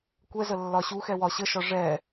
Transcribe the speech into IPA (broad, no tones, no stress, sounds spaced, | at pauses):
kʷ ɛ z ə lː ɒ ɕ u x ɛ w ɒ ɕ ə ʃ ɒ ʐ ɛ